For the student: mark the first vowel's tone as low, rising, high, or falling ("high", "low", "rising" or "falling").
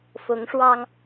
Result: rising